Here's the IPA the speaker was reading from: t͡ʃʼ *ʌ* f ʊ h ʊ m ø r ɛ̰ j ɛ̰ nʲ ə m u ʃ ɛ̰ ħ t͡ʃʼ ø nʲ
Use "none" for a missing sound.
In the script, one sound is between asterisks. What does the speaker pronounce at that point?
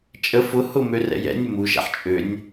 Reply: ə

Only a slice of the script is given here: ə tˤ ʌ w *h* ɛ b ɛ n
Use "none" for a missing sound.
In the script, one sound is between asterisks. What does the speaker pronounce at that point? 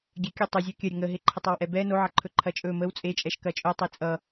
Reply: ʔ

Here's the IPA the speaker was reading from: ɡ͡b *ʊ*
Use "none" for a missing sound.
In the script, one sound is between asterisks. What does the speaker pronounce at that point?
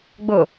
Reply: ʊ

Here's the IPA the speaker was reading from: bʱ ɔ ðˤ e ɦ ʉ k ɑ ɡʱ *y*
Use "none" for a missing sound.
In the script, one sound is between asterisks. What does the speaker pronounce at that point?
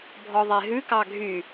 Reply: y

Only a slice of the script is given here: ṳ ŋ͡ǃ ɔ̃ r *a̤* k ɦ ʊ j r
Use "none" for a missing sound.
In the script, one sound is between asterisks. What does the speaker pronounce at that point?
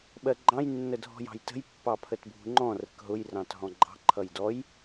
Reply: ə̤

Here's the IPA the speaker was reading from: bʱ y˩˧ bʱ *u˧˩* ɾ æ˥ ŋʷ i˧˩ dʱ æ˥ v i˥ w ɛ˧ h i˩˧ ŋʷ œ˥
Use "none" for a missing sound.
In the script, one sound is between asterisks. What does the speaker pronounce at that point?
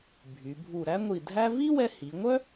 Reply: u˧˩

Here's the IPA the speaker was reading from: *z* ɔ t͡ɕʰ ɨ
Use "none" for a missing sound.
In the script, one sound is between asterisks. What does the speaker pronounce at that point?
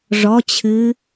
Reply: ʐ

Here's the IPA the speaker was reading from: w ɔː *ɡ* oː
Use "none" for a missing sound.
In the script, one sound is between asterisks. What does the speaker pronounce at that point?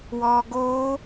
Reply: ɡ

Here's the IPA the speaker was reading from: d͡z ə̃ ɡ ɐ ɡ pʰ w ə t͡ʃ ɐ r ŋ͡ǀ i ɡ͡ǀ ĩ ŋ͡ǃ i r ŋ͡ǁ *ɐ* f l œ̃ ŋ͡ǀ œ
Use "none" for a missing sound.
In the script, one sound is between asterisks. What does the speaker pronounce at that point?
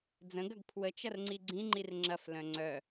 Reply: ɐ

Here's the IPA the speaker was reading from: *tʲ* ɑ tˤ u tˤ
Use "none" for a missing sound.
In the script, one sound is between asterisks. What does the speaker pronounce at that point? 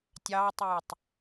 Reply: tʲ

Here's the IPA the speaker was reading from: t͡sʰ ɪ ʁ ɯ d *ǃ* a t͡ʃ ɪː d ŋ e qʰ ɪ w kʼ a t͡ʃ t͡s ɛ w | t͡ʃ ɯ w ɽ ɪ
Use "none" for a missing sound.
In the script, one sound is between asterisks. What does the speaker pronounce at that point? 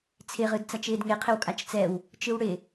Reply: t͡s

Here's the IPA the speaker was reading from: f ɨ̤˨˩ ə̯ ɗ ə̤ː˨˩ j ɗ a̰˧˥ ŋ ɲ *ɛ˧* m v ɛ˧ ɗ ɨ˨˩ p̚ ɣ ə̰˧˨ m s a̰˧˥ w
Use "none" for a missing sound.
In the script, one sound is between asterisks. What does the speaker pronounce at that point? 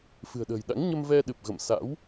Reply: ə˧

